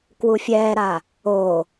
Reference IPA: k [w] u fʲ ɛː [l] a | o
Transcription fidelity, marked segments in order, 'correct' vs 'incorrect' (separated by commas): correct, incorrect